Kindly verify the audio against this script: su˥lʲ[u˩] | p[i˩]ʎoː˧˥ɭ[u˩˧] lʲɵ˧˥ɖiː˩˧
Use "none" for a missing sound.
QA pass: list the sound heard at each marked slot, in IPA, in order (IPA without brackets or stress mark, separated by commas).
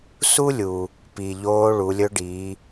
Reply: u˩, i˩, u˩˧